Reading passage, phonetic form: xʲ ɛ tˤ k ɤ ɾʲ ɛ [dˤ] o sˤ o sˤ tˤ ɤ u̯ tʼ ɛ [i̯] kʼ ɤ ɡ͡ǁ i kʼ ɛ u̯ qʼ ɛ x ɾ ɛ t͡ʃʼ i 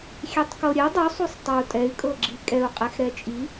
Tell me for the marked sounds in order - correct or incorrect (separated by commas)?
correct, incorrect